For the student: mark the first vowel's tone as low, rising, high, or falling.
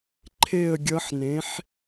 falling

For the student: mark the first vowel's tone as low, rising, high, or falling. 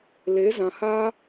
rising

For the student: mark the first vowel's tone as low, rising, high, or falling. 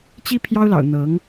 high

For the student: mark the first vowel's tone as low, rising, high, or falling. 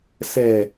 low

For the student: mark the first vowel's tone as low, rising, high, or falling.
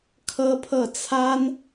high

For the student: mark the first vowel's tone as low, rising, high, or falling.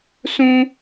high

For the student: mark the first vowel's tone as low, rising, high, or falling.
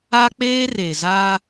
high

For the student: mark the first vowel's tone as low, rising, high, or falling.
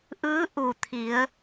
rising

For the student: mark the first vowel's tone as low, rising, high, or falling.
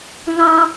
high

